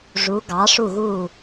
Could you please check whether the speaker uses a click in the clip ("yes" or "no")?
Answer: no